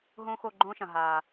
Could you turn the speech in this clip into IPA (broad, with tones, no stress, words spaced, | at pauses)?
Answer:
ɦõː˦xo˦˨ɡ͡ǃõː˦ʃɐ̃˨ ɦaː˨